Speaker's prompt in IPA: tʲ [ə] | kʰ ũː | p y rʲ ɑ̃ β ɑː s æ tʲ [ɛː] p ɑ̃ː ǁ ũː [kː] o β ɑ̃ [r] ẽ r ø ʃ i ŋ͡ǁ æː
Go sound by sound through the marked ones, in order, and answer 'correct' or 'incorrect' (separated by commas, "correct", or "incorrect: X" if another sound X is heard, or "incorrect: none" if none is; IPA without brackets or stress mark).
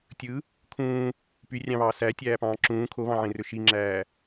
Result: incorrect: ɯ, incorrect: æː, incorrect: kʰ, incorrect: ʕ